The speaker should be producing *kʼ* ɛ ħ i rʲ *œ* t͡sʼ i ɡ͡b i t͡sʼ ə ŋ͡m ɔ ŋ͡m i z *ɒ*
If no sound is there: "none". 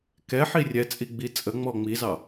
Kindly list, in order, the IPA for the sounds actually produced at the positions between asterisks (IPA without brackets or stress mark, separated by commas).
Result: k, ɛ, ɑ